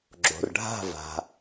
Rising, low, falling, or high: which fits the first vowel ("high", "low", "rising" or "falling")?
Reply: low